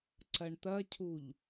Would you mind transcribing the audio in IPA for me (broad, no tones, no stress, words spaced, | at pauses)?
ǀɐɳt̪ɐcʰuʎ